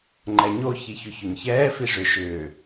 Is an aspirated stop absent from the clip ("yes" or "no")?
yes